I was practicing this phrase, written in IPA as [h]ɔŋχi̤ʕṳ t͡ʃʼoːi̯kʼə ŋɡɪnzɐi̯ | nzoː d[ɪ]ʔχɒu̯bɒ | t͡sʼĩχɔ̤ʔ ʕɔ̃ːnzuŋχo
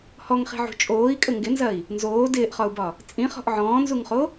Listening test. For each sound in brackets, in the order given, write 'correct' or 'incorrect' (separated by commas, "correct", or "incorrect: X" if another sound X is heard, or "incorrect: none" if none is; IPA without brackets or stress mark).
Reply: correct, incorrect: ɪː